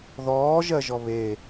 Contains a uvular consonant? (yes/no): no